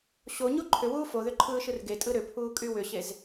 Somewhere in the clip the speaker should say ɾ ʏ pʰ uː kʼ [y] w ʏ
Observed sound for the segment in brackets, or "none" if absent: y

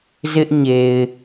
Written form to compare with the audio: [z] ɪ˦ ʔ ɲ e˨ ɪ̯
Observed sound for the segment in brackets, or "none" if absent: z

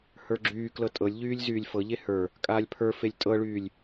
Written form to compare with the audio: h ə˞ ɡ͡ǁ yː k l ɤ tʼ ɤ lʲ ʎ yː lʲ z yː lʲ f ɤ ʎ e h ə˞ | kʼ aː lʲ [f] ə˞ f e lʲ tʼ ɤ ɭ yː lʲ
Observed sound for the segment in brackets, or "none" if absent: pʰ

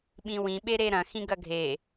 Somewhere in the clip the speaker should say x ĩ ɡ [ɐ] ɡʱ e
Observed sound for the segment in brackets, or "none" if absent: ɐ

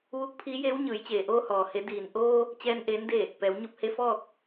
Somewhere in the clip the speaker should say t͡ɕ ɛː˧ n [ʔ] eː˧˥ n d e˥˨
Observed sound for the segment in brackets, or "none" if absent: ʔ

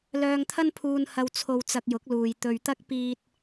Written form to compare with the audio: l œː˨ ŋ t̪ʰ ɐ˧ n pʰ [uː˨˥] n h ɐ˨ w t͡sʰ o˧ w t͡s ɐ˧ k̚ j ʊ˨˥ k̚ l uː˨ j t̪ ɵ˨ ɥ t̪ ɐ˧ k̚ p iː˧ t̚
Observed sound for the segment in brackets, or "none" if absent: uː˨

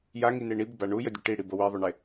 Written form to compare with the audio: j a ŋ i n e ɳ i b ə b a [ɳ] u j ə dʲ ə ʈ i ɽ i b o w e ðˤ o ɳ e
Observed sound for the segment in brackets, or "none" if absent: ɳ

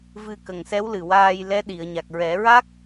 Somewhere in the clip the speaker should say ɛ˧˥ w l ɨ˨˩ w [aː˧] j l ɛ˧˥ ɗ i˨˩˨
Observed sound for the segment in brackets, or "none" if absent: aː˧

